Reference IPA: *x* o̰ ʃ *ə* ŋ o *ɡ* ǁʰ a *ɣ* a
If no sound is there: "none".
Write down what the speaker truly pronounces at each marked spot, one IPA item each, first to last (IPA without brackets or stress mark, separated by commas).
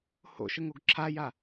h, ə, ɡ, j